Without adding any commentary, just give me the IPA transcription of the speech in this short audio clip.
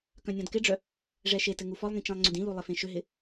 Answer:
k œ̃ nʲ ɔ̃ d k ɪ ɖ͡ʐ œ | ʐ ɛ ʃ e t ɘ ŋ u f ɔ lˠ ŋ ĩ t͡ʃ ẽ lˠ ŋ͡ǀ ʏ d ĩ l u lˠ ɪ f ẽ ʃ ʏ ɦ ɪ

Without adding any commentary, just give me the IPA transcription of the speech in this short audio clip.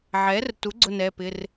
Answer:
ʕ ɛː˩˥ r t u˩˥ ɡ͡ǀ ʊ˥˧ n ɛː˩˧˩ p ɪ˩˧˩ r

